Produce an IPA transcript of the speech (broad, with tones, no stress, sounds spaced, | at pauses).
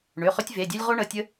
ɳ ø˩˧˩ χ ʏ˦ tʲ v e˩˧˩ dʲ ø˦ lʲ ʁ o˦ ɳ ə˩˧˩ tʲ ə˦